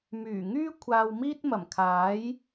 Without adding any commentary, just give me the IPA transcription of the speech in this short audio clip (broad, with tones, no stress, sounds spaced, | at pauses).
m yː˨˩ ŋ yː˥ kʷʰ aː˧ w m iː˥ t̚ m ɐ˨˩ m kʰ aː˨˥ j